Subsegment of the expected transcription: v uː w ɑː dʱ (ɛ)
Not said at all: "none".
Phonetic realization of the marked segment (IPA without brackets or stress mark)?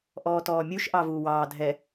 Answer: ɛ